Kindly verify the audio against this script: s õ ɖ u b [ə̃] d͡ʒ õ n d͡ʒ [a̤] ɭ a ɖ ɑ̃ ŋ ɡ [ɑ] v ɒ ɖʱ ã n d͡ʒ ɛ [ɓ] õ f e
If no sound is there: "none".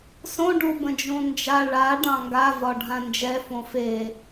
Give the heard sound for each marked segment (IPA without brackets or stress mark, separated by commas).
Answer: ə̃, a, a, f